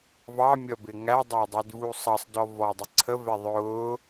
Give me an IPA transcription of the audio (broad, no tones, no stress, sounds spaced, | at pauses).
v ɑ mʲ ʌ b ɪ ŋ æ dˤ æ dˤ ɛ d v u sˤ ʌ sˤ d ɔ v ɔ dˤ ɪ ǀʰ ə v ɛ ðˤ ʊː